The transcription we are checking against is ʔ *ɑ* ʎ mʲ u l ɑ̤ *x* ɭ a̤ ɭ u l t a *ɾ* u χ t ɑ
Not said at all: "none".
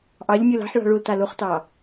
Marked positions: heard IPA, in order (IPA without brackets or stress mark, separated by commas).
ɑ, ħ, l